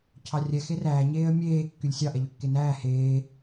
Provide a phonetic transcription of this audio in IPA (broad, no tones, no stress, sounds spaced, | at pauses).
cʰ ɑ rʲ ɛ x e r æː ɲ eː ə̯ mʲ eː kː y lʲ sʲ ɑ ʔ ɛ ʎ ø kː e n æː h eː